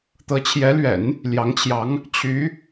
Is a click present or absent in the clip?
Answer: absent